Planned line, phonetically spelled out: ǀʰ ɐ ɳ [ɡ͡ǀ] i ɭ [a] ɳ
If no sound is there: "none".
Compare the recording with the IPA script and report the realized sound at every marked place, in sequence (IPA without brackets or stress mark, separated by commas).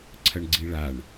ɡ͡ǀ, a